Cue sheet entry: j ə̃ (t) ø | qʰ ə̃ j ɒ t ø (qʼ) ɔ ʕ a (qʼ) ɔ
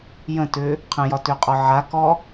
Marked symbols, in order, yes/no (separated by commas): yes, yes, no